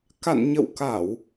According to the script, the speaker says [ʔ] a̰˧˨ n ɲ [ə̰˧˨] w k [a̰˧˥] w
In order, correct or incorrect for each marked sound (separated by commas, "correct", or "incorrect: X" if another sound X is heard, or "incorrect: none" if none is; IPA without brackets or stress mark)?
incorrect: k, correct, incorrect: a˧˩˨